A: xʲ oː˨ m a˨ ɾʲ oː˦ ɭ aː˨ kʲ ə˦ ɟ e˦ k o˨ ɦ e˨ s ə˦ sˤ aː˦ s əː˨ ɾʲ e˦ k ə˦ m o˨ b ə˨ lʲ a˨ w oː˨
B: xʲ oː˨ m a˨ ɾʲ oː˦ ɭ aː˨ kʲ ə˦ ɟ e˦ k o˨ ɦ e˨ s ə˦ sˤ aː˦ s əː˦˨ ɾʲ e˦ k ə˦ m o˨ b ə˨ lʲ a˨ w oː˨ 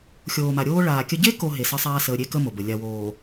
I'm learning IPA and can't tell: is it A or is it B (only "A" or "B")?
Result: A